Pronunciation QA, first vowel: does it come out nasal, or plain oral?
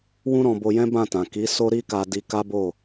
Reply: nasal